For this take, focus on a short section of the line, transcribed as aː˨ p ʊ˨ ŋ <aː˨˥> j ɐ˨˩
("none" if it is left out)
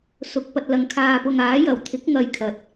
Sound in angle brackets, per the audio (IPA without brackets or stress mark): aː˨˥